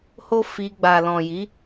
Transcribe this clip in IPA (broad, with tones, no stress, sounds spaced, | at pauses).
h o˦ f i˧ ɡ͡b a˨ l ɔ̃˨ j i˨˦